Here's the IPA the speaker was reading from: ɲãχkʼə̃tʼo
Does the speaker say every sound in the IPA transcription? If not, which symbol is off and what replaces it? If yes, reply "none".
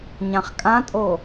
ə̃ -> ã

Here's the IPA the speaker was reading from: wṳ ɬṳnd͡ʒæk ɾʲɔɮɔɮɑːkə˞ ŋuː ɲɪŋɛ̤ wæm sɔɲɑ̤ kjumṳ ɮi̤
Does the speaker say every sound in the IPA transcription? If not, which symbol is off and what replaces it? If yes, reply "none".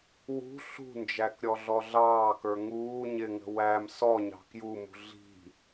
ɛ̤ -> ə̤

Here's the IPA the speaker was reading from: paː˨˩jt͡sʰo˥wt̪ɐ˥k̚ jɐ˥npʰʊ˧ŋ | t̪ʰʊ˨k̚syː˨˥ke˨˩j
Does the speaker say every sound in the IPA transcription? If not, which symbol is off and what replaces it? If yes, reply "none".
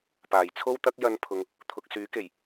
none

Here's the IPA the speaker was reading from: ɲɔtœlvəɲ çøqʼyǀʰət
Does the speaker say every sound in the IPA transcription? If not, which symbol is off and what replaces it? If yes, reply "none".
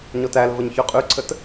œ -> æ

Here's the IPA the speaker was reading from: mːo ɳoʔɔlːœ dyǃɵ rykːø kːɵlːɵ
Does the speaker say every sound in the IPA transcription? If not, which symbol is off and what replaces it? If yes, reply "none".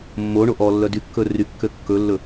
ǃ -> kː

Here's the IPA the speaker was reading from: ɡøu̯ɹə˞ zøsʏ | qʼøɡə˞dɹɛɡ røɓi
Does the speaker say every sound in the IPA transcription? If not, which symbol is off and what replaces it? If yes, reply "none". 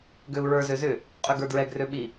s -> z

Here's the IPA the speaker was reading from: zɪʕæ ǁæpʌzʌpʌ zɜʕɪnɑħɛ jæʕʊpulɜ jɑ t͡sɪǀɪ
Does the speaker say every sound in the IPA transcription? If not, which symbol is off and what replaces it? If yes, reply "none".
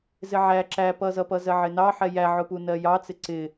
l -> n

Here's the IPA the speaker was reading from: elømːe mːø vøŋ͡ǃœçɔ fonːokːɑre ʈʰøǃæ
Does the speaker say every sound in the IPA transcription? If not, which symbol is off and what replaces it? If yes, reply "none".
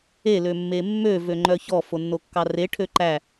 none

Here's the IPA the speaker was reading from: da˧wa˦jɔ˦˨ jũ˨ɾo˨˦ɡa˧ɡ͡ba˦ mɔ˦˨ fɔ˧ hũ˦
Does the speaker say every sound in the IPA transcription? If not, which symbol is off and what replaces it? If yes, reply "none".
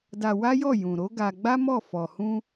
none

